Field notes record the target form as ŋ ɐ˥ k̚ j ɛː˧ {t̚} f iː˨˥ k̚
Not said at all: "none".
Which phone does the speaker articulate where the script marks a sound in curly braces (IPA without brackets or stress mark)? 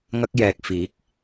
k̚